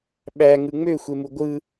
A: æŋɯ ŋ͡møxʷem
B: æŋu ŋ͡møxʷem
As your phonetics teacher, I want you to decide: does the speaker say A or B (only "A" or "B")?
A